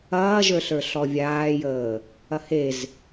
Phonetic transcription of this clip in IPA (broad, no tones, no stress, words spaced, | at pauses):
ɐːʒə˞ɬə˞ ɬɔvʲaːjəː | ɐhez